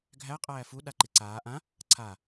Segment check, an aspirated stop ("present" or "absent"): present